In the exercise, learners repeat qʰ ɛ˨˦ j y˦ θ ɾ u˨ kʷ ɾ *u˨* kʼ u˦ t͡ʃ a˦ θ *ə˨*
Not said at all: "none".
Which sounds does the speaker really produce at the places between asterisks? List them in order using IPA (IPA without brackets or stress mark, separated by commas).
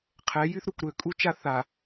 ø˨, a˨